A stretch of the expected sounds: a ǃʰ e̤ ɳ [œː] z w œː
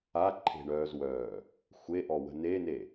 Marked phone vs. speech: correct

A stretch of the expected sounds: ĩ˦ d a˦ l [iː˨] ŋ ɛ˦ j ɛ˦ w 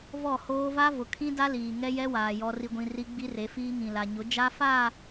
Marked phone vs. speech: correct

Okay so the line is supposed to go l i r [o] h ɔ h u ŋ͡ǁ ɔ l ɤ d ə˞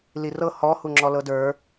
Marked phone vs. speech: incorrect: ɤ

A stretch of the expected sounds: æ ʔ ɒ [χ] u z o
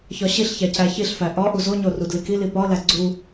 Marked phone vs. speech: incorrect: ʔ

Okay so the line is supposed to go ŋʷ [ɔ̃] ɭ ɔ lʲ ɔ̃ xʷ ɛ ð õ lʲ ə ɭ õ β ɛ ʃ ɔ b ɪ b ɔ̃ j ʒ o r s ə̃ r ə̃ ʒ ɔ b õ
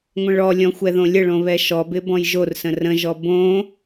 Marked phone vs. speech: incorrect: ə̃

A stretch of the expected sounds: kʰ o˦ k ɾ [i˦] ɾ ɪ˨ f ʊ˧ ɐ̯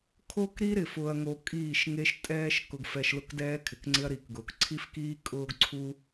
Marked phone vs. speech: correct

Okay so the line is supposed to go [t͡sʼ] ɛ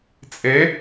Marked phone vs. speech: correct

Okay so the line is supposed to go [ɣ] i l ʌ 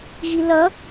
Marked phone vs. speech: correct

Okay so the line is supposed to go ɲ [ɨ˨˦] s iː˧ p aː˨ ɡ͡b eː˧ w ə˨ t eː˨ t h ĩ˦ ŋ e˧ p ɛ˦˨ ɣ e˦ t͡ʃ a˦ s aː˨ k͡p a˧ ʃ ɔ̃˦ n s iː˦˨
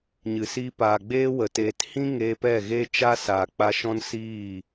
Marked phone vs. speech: incorrect: ɨ˨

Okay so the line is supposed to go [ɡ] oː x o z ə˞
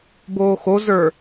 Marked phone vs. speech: incorrect: b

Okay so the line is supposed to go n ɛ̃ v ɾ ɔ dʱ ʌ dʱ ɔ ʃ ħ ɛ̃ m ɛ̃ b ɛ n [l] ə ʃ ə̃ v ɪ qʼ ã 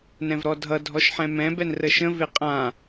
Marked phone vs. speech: incorrect: r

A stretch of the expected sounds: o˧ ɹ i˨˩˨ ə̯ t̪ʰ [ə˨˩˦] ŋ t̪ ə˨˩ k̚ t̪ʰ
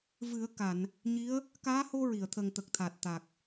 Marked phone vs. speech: incorrect: ə˨˩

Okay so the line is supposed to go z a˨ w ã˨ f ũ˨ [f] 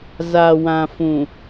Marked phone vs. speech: incorrect: none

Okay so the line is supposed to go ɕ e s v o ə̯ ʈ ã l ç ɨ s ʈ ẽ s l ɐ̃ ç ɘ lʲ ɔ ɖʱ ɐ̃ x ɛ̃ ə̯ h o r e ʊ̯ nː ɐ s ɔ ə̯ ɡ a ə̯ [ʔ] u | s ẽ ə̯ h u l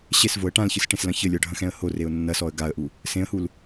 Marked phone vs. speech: correct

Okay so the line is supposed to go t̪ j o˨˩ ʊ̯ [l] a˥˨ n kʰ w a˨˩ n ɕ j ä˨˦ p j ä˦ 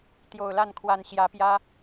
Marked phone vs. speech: correct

